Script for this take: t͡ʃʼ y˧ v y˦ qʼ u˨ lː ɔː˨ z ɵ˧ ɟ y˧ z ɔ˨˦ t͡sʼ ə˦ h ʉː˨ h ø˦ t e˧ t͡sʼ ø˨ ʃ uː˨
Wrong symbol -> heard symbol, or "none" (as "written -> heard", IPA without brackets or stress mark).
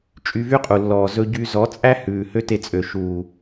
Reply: ə˦ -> æ˦